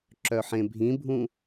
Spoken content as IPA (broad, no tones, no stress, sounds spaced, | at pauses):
ǁ œ ħ ẽ bʱ ĩ bʱ ũ